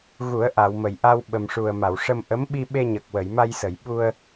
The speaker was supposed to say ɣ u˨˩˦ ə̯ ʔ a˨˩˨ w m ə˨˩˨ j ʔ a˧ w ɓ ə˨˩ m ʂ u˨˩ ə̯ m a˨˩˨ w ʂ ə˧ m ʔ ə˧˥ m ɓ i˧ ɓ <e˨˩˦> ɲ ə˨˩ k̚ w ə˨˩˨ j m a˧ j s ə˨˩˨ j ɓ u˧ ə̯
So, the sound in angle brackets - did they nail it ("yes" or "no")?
no